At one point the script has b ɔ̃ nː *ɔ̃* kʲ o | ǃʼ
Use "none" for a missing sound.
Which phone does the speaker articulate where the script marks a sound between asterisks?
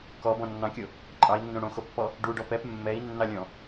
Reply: ɑ̃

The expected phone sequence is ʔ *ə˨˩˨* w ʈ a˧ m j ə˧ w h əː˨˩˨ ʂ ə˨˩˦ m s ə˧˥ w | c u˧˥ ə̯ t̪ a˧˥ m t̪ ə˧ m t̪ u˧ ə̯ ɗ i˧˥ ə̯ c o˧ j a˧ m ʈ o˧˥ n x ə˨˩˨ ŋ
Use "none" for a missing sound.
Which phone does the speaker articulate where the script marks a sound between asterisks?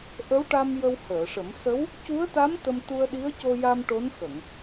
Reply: ə˧˥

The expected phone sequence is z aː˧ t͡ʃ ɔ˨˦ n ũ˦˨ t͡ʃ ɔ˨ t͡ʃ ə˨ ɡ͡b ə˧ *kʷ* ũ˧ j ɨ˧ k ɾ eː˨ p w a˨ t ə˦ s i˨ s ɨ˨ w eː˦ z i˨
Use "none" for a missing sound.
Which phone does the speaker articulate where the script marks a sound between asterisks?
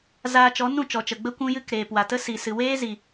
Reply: kʷ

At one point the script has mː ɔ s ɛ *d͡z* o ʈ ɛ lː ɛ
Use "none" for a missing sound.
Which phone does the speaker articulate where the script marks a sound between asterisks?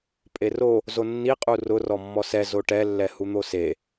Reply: z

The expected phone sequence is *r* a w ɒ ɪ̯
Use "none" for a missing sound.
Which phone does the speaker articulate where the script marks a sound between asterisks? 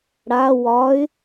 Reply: ɽ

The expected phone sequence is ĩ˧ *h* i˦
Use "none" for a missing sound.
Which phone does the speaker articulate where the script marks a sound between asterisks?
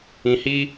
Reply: h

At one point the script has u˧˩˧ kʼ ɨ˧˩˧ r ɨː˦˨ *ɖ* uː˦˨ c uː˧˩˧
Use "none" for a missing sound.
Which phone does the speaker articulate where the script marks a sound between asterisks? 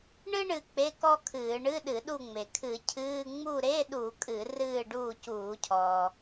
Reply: ɖ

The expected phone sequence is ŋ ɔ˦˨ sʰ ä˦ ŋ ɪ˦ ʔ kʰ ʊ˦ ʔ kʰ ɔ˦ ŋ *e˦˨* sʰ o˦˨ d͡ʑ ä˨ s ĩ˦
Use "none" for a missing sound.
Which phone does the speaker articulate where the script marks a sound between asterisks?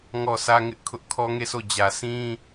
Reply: e˦˨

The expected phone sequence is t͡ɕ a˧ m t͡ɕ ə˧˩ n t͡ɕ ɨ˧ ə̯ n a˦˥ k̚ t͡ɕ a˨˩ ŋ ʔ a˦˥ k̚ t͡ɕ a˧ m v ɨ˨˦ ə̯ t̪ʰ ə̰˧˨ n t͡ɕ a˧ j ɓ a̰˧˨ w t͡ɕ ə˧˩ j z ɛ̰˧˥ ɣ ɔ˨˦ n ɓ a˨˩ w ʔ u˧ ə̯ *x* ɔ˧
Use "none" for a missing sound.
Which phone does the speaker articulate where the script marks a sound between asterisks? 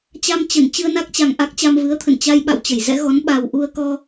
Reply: k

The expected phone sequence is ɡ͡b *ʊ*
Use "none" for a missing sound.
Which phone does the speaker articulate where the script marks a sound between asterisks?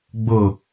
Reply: ʊ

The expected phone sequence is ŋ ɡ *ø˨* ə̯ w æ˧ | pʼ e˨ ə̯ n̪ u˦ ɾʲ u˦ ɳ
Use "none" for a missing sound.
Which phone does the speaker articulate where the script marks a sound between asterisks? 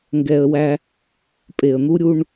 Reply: ɛ˨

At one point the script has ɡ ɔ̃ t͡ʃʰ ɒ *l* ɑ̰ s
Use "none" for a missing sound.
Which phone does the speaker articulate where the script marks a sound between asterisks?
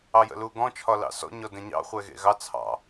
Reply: l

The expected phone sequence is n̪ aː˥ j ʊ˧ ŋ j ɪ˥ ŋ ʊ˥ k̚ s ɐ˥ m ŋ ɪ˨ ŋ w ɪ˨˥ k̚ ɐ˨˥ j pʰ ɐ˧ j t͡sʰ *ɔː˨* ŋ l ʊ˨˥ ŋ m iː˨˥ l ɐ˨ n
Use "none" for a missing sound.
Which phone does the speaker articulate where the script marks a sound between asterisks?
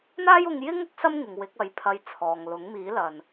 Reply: ɔː˨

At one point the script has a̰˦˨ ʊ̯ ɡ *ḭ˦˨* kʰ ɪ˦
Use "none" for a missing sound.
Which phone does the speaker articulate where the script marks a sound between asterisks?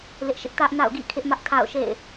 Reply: ḭ˦˨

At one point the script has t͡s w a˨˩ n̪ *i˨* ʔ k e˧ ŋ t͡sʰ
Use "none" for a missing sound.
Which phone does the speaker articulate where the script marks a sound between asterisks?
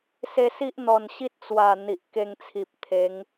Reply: i˨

